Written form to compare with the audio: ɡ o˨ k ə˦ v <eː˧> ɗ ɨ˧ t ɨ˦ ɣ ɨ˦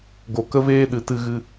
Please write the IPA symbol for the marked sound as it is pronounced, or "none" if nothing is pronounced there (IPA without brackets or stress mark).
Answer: eː˦